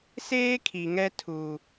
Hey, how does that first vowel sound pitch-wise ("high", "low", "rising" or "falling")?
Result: high